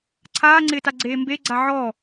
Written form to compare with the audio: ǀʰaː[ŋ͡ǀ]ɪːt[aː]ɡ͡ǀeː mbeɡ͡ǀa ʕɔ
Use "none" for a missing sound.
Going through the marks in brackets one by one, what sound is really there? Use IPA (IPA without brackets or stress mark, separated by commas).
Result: ŋ͡ǀ, a